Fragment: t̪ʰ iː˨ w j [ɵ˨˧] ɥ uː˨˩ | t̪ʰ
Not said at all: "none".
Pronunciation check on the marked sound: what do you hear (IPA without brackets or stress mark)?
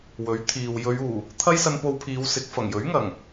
ɵ˨˧